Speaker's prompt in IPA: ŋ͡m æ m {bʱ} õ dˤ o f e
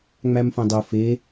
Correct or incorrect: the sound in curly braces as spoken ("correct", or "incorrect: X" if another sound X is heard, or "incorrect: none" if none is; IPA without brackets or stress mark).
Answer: incorrect: f